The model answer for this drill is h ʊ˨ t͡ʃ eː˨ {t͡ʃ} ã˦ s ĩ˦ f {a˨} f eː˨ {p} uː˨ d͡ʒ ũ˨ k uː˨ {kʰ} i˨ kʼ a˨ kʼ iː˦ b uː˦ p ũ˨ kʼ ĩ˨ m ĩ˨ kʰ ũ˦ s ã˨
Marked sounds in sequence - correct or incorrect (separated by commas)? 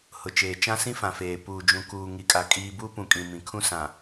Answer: correct, incorrect, correct, incorrect